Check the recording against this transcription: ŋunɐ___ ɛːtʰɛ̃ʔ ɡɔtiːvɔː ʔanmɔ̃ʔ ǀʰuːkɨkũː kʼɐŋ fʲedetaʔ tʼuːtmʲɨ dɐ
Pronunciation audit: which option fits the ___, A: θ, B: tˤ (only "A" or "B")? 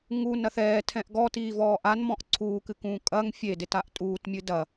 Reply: A